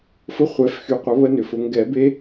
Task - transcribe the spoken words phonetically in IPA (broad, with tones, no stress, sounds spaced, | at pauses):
f ʊ˦˥ χʷ ɛ˨˩˦ f x y˨˩˦ qʷ ə˨˩˦ β ə˦˥ n ʏ˨ f ʊ˨˩˦ ŋ ɡ ɛ˨˩˦ b e˦˥